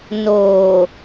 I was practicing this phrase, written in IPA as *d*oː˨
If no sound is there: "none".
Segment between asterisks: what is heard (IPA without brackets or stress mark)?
n